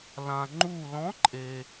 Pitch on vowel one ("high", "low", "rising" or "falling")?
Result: low